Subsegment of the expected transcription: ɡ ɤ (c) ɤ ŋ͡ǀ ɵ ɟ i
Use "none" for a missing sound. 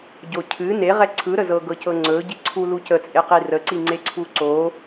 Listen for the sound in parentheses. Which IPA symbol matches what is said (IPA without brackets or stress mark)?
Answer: c